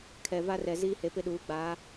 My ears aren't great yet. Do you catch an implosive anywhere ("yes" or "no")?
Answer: yes